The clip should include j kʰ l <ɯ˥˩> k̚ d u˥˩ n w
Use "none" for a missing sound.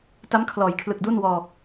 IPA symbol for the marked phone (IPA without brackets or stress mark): ɯ˨˩